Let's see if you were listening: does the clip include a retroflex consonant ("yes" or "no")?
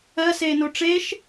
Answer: yes